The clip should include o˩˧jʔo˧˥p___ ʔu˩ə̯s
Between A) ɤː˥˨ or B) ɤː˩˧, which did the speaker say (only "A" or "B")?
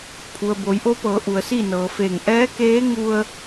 B